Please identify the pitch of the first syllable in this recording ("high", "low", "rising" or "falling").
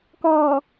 low